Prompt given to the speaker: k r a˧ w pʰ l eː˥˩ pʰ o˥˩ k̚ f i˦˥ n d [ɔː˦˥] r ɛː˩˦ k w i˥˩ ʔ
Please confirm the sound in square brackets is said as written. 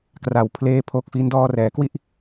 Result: no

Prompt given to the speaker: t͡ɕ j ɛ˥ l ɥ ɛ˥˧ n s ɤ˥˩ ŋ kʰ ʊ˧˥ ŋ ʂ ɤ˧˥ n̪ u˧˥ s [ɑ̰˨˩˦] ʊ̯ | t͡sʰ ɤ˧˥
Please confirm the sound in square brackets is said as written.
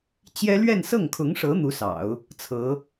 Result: yes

